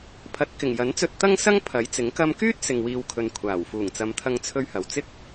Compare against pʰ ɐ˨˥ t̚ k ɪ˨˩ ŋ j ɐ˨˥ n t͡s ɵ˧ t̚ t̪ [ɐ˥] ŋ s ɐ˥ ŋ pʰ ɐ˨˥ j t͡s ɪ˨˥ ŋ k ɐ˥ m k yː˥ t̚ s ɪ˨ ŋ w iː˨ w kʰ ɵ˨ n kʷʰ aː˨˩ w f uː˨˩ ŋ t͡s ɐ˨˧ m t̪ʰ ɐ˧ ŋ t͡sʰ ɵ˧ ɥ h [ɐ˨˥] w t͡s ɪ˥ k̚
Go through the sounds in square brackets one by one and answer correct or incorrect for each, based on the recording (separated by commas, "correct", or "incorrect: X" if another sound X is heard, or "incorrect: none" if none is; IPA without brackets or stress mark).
correct, incorrect: ɐ˨